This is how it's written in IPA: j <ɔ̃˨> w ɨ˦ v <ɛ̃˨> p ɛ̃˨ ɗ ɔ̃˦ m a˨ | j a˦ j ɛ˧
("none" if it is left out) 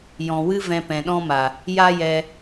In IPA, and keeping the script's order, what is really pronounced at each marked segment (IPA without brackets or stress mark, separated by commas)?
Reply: ɔ̃˨, ɛ̃˧